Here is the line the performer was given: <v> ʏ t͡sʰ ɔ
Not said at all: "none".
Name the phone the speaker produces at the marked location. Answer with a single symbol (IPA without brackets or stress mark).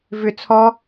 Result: v